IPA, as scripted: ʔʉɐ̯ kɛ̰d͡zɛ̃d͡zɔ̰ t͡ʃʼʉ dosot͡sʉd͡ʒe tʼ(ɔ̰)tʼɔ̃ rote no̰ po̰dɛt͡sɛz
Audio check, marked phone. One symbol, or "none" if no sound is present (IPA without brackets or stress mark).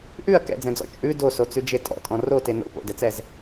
ɔ̰